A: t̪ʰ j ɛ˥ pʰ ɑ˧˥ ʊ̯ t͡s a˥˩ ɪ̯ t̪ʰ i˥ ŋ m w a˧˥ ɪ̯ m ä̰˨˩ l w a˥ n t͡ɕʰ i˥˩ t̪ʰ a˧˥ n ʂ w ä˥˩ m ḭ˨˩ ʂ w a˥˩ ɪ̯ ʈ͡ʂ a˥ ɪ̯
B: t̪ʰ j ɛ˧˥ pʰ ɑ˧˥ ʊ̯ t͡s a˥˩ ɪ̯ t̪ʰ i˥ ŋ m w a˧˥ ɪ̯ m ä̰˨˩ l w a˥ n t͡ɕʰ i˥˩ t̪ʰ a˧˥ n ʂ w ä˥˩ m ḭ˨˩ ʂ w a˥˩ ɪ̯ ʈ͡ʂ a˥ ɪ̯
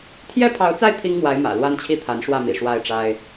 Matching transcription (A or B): A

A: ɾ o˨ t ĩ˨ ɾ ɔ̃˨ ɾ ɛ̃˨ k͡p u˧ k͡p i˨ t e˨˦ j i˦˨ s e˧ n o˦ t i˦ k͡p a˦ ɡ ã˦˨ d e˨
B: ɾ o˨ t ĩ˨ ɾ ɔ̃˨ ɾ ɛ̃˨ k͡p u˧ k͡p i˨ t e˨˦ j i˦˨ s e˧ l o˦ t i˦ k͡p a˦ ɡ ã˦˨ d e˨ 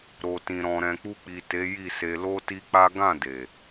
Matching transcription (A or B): B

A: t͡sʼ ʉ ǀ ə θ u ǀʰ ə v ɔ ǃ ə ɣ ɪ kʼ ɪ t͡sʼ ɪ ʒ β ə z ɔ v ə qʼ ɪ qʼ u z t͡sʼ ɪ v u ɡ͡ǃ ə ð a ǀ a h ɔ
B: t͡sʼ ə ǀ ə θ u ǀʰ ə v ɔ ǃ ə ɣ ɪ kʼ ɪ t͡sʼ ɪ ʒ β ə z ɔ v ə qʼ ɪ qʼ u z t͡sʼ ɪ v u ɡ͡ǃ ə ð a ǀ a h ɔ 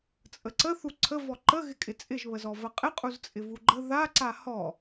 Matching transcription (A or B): B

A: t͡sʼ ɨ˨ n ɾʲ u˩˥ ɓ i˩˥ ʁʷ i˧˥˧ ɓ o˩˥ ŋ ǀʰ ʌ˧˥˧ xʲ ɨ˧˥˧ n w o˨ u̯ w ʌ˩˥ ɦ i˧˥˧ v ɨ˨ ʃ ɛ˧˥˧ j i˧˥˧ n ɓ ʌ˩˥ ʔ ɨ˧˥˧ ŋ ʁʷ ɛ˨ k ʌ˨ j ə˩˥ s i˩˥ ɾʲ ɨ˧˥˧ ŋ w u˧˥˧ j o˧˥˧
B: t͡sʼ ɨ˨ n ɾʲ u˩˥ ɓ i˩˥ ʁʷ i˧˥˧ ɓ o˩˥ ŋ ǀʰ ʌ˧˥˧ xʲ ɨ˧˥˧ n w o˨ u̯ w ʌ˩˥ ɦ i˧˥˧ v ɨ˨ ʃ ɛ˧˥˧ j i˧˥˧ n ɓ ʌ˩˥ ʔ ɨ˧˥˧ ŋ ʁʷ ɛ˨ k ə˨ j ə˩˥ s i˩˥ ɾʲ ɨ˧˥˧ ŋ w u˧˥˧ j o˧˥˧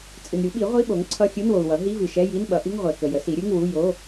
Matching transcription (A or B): B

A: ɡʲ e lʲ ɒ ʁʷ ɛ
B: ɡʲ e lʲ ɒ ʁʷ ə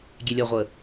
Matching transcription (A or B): B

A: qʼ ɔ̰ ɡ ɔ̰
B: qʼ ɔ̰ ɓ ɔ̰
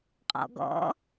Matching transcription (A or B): A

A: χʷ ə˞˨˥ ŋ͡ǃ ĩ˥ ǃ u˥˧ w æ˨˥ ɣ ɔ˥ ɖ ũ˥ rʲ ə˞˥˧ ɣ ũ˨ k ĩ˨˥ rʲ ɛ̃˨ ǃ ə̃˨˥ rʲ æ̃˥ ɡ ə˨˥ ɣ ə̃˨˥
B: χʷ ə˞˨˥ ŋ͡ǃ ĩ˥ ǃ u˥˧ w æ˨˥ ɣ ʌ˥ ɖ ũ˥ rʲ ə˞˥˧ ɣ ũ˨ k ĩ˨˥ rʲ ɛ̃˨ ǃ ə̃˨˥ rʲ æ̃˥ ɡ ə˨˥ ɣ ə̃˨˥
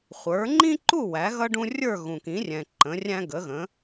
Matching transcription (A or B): B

